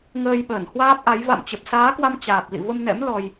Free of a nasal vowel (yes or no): yes